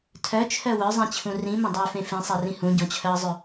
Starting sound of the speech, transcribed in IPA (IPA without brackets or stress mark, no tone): tʰ